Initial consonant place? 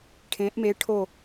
retroflex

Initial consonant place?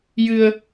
palatal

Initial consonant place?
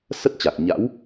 alveolar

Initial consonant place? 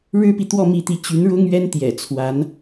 retroflex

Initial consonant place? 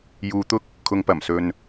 palatal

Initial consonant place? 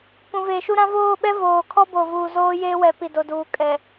labial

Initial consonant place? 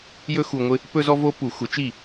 palatal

